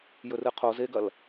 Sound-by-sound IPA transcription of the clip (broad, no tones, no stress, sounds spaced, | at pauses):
j ɵ r ɨ qʰ o z e ɡ ɐ l